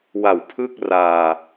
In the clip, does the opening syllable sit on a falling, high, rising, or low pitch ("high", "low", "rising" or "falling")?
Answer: low